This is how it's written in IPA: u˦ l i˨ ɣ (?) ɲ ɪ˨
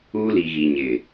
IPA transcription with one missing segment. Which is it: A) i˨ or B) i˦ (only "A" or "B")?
A